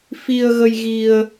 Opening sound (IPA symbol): f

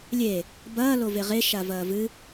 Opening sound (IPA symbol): lʲ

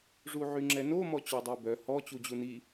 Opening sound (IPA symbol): ʐ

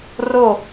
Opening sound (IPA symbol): r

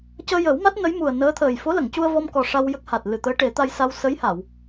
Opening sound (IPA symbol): c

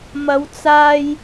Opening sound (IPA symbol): m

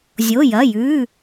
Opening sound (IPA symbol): zʲ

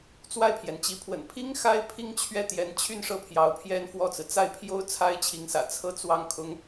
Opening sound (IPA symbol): t͡s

